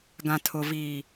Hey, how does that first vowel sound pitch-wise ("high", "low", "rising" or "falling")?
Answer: low